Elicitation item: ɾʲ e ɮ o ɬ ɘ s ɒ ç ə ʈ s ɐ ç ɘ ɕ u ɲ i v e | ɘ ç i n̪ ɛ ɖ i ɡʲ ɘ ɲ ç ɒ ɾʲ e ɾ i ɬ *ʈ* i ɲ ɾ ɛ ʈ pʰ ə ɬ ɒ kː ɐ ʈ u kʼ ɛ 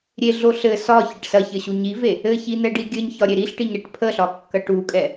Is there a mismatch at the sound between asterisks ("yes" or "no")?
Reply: no